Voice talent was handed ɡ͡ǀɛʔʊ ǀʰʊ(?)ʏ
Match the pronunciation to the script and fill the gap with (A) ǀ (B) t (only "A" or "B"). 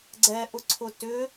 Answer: B